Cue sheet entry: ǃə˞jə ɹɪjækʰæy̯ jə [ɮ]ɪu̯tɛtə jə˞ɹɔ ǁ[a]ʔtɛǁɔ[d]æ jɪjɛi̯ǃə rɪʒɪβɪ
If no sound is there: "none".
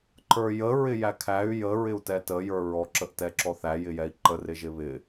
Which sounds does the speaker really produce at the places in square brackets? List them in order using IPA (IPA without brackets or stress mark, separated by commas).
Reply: ɹ, ə, θ